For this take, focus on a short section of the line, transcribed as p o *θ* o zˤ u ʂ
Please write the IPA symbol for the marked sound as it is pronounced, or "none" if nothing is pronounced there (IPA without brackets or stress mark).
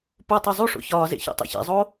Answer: tˤ